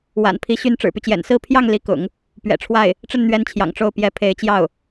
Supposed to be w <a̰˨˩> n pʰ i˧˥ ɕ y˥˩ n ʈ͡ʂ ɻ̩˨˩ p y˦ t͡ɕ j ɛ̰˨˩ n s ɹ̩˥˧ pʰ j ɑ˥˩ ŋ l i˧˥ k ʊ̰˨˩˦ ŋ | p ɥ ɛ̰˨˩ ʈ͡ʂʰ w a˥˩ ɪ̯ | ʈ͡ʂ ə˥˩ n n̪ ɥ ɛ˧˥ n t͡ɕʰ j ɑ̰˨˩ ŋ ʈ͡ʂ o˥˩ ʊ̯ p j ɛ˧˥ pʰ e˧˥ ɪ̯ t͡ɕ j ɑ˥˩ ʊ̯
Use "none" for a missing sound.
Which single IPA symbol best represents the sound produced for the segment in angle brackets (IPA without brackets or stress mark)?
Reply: a̰˨˩